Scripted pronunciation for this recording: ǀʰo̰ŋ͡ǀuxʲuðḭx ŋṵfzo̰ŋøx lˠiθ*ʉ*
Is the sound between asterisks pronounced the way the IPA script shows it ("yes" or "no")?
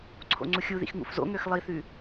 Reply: yes